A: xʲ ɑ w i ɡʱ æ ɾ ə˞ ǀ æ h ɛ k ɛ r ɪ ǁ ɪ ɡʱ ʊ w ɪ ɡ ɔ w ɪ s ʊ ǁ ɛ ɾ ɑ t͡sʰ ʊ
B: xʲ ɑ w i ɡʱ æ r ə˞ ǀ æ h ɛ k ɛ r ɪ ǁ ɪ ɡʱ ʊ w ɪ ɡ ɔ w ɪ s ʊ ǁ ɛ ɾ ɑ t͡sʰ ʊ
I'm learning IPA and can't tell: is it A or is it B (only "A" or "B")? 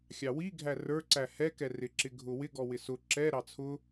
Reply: B